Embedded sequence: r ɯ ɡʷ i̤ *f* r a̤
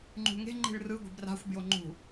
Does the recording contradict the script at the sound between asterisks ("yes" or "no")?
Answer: yes